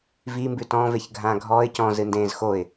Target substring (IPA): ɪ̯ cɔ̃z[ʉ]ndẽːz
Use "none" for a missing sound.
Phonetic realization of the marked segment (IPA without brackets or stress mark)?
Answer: ɨ